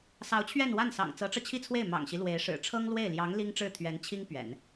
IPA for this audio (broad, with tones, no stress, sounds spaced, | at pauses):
s ɑ˧˥ ʊ̯ t͡ɕʰ ɥ ɛ˥˧ n w a˥˩ n s ɑ̰˨˩ ŋ t͡s ɤ˧˥ ʈ͡ʂ ɤ˧ t͡ɕʰ i˥ t͡sʰ w e˥˩ ɪ̯ m ɑ̰˨˩ ŋ ɕ i˦ l w e˧˥ ɪ̯ ʂ ɻ̩˨˩ ʈ͡ʂʰ ɤ˥ ŋ l w e˥˩ ɪ̯ l j ɑ˧˥ ŋ l i˥ ŋ ʈ͡ʂ ɻ̩˥˩ t̪ʰ ɥ ɛ˧˥ n t͡ɕʰ i˥ ŋ p ɥ ɛ̰˨˩˦ n